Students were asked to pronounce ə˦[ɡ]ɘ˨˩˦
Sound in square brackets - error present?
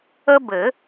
yes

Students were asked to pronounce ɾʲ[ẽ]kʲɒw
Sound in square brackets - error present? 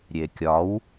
yes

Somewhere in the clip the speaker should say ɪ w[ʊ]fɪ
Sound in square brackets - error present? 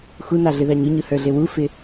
yes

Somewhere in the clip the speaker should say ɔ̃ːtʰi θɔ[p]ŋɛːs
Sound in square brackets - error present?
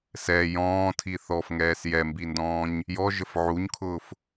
yes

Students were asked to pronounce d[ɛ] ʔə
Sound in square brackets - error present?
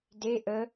yes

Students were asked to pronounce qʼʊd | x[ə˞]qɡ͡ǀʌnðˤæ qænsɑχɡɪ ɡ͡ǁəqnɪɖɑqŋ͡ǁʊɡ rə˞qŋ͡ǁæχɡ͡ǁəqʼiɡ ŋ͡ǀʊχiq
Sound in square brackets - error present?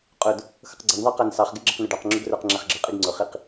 yes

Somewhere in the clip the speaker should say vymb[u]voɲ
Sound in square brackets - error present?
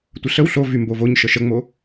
yes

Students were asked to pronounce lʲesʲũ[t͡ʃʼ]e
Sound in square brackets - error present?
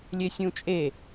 no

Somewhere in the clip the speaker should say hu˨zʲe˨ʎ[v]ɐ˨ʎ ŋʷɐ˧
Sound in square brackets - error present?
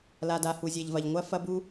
no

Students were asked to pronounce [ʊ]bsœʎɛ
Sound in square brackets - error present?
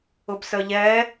no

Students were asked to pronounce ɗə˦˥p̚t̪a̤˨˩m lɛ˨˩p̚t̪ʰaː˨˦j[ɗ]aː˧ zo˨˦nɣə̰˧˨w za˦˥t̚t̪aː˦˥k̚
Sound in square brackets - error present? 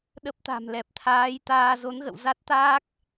yes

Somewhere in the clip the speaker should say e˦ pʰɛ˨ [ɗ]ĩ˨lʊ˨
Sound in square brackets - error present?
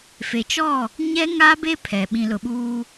yes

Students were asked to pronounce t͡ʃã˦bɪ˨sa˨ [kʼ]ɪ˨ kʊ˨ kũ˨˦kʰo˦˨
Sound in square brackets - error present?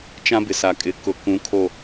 no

